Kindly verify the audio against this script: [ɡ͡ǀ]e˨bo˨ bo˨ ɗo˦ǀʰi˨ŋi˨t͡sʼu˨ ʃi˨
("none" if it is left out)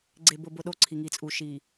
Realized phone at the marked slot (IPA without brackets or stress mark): ɡ͡ǀ